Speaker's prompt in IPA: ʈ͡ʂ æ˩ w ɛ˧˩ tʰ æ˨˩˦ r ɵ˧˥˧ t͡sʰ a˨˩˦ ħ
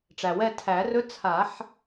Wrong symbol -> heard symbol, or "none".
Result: none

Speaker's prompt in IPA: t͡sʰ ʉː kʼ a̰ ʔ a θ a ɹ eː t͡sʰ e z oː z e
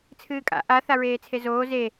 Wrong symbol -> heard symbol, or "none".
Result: ʉː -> ɨː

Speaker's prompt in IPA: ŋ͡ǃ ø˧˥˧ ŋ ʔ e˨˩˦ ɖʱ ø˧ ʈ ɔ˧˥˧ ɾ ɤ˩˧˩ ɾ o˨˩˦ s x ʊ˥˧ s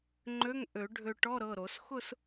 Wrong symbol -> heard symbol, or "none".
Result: e˨˩˦ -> ø˨˩˦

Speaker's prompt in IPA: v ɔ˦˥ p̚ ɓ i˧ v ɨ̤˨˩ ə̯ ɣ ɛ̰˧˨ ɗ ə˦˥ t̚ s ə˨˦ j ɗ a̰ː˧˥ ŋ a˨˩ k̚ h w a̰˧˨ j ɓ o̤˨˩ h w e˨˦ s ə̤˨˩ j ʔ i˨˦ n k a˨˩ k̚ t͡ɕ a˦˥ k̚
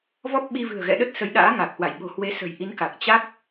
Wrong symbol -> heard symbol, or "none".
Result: none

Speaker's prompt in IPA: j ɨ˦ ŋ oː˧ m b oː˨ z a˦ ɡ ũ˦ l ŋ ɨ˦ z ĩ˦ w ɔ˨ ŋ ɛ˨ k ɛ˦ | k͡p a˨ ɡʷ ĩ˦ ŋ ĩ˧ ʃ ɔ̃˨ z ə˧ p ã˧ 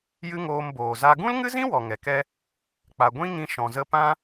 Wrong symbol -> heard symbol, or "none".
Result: none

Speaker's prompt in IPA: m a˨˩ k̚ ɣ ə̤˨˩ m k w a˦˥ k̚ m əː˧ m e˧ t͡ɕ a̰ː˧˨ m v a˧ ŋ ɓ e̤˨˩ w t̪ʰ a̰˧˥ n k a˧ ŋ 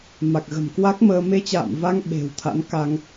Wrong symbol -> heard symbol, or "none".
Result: none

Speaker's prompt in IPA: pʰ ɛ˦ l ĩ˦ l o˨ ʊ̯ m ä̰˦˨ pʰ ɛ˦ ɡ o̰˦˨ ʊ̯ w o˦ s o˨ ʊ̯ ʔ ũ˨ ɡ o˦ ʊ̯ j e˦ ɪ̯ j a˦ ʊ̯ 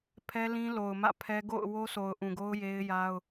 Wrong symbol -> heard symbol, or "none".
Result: none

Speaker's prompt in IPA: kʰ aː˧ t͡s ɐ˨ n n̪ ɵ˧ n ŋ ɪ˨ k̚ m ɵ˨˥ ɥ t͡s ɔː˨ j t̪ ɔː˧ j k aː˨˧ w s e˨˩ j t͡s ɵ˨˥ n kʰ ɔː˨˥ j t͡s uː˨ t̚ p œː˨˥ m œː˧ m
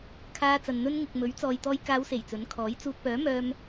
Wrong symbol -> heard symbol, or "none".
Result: none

